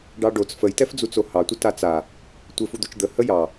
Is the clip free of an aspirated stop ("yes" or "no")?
yes